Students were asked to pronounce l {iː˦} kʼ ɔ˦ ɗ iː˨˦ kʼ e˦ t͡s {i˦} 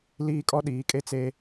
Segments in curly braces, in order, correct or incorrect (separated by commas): correct, incorrect